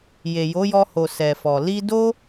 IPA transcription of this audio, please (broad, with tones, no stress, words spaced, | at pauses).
je˨jo˨˦jɔ˧ho˨ sɛ˨fɔ˨ li˧do˦